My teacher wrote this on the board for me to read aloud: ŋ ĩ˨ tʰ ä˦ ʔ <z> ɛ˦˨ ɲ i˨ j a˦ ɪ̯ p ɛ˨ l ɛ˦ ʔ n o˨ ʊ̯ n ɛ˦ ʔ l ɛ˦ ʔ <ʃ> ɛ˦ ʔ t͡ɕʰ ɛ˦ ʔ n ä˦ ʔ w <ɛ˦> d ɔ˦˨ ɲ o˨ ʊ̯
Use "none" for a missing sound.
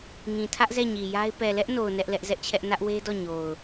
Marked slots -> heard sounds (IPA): z, z, e˦

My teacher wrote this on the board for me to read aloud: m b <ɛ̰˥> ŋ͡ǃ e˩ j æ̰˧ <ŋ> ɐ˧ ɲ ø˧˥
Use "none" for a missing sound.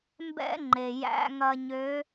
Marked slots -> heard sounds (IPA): ɛ̰˥, ŋ

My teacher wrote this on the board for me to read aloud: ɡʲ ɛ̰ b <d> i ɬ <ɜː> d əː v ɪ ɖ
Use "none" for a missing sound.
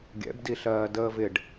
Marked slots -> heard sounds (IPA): d, ɜː

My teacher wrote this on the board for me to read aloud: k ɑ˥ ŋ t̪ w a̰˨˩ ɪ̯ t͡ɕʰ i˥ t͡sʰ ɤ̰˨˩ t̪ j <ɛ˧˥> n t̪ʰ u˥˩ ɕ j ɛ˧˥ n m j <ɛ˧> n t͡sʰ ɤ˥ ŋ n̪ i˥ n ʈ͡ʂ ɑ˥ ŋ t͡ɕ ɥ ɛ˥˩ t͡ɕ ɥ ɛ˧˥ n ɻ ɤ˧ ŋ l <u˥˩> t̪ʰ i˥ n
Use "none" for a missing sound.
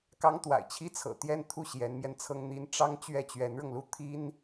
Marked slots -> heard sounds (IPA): ɛ˥˧, ɛ˧, u˥˩

